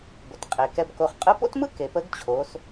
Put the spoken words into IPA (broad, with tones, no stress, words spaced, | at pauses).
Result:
ɡʷə˩tqʼe˩kɛ˧bko˧χ qʼɯ˧˥po̰˥tmɯ˥ ke˩pə˧˥ɡt͡ɕʰo˩˧s